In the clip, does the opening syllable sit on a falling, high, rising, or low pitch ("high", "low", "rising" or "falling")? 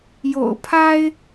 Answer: low